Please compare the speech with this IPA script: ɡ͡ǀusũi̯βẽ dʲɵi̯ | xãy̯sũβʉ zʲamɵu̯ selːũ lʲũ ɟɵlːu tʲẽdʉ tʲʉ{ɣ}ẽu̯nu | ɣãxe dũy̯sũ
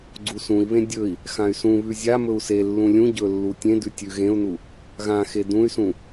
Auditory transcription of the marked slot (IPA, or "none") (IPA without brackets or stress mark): ɣ